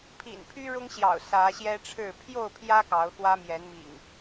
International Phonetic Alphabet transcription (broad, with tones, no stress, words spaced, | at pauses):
pʰḭ˨˩n pʰy˦ ɻʊ˦ŋɕjɑ̰˨˩ʊ̯ sä˨˦ɕjɛ˦ʈ͡ʂʰɻ̩˥˨ pʰjo˥˨ʊ̯pʰjä˦ kɑ˨˦ʊ̯xwä˦mjɛ˨˦n mḭ˨˩ŋ